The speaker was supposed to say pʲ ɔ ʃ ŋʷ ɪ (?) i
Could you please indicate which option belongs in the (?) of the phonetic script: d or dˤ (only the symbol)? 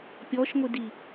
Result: d